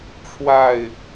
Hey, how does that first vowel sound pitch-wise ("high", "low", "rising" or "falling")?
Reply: falling